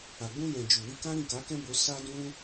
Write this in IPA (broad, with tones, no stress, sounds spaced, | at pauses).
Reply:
a˨ ɡ͡b ũ˧ j ɛ̃˨ d͡ʒ u˨ w i˧ k ã˦ ɾ ĩ˦˨ k a˨˦ k ɛ̃˦ b o˧ s a˦ d ũ˦